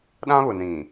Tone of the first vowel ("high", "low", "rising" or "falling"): high